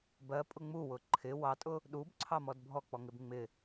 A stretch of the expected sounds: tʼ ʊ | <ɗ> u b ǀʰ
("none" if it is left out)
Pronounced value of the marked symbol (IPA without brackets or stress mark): ɗ